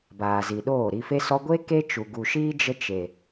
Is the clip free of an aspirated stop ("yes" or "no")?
yes